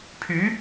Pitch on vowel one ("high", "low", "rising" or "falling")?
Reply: rising